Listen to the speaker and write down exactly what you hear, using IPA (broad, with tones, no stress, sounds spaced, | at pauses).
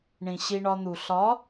ɳ ĩ˨ ɕ i˧ ɳ ɒ˧ n̪ u˨ ɬ ɒ˨˦